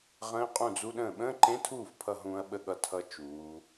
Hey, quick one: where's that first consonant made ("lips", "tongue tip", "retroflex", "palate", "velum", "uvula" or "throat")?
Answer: uvula